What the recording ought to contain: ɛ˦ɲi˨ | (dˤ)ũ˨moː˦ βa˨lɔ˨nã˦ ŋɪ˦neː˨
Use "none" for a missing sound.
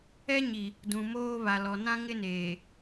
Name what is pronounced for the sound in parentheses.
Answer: d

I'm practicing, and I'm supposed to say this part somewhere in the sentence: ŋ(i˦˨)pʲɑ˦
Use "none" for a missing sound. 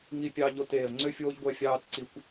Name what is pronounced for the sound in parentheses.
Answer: i˦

